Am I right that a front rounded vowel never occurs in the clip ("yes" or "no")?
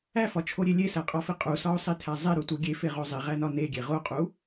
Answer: yes